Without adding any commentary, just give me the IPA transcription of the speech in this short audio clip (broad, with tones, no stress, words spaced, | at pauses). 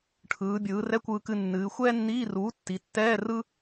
ʈʰɯː˩˧bʲɯː˩˧rɛ˧˥˧ kʷɯː˧kɨ˧nːɨː˩˧ xʷɛː˥nːiː˧˥˧ruː˩˥ tːi˩˧tːɛː˧˥˧ rɯ˥